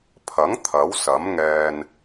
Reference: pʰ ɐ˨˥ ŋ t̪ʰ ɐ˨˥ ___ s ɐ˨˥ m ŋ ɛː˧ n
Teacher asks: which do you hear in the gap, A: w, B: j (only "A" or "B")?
A